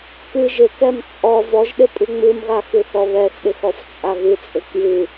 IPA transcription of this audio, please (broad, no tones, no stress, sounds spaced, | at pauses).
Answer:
k ɨ ʒ ɪ k ɛ m t͡sʼ ɔ v ɔ ʒ ɗ ɪ pʼ ɨ ŋ͡m ɨ m ɣ a x ɨ θ ɔ β ɛ x ɗ ɪ x ɔ f t͡sʼ a ɣ ɨ t͡sʼ ɪ k j ɨ